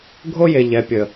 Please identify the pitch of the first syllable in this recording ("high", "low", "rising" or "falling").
high